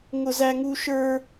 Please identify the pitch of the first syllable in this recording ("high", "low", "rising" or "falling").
high